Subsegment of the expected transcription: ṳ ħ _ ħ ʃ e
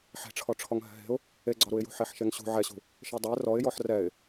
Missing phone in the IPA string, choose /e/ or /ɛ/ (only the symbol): e